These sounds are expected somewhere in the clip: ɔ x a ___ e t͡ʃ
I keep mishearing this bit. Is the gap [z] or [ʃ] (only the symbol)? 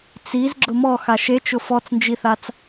ʃ